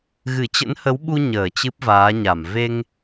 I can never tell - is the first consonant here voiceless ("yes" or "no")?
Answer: no